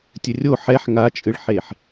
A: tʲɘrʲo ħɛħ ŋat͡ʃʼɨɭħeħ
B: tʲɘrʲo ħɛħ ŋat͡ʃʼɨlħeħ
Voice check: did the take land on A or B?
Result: A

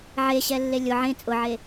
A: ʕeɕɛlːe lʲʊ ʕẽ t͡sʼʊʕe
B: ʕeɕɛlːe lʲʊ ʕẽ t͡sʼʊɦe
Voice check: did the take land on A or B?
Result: A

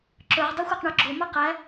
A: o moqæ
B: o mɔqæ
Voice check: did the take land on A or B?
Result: B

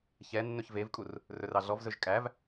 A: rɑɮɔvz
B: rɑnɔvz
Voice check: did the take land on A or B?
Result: A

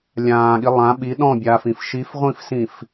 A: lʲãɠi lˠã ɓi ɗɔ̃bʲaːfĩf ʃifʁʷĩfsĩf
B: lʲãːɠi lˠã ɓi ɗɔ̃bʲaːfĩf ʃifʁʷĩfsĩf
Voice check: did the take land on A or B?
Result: B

